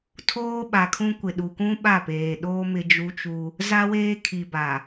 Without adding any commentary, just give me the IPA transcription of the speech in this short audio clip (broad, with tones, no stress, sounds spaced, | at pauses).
tʰ oː˦ ɓ a˨ kʰ ũ˦ kʷ ɪ˨ ɗ u˨ k ũ˦ ɓ a˦˨ p eː˨ ɗ oː˦ m ɪ˦ d͡ʒ u˦ t͡ʃ u˦ | z a˦ w eː˦ kʰ i˨ b a˨